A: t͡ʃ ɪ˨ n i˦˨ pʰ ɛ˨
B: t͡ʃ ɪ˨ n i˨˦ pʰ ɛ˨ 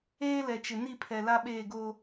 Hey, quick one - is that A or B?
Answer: A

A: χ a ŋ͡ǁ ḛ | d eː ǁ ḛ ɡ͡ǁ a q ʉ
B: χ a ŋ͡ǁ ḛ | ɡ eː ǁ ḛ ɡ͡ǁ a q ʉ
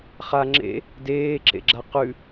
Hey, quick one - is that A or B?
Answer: A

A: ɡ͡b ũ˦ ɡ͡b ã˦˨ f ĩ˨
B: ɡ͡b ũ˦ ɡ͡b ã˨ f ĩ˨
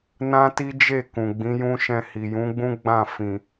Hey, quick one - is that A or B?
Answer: A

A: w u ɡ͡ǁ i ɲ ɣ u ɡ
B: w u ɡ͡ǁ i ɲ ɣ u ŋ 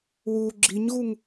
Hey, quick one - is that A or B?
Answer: B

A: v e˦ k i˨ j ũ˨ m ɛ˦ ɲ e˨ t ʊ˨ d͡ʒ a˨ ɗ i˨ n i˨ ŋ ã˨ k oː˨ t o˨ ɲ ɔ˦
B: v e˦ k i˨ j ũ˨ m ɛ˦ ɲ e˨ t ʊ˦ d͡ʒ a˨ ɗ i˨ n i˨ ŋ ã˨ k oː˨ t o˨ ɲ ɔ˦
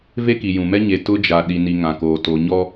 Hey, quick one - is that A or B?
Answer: B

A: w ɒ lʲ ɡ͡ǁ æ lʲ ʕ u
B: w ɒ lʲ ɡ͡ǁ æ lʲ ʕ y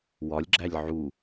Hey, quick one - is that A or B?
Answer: A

